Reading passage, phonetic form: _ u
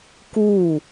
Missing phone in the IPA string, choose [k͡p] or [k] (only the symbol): k